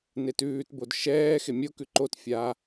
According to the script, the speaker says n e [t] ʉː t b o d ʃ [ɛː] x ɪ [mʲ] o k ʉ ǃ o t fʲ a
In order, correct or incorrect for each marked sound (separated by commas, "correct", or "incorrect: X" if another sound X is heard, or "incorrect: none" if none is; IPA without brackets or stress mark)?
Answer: correct, correct, correct